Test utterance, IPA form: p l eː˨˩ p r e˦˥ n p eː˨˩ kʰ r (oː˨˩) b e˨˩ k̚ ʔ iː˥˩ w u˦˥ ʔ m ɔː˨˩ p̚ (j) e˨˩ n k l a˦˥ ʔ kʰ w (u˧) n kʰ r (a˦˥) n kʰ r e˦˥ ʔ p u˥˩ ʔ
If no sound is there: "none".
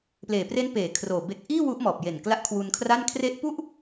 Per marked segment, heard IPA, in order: oː˨˩, j, u˧, a˥˩

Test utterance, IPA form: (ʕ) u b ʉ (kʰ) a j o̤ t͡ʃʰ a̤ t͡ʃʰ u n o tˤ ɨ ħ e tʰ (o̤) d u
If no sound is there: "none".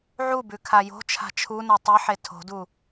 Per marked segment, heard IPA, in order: ʕ, kʰ, o̤

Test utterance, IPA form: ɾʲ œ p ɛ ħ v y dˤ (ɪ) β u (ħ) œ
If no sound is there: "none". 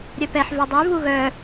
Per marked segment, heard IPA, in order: y, ɣ

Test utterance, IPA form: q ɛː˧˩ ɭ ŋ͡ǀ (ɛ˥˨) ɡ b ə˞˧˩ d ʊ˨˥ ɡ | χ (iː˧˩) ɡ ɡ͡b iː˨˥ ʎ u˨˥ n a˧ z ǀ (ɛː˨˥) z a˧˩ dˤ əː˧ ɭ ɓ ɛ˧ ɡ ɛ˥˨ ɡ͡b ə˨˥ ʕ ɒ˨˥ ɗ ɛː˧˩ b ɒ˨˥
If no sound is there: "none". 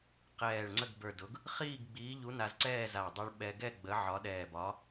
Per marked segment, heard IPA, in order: ə˥˨, iː˥˨, ɛː˥˨

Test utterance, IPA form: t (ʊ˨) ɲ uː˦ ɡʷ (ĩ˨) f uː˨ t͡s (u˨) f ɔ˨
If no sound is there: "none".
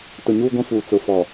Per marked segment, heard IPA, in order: ʊ˨, ĩ˦, ʊ˨

